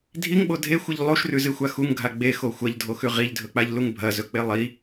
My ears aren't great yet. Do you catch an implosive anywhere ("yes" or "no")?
yes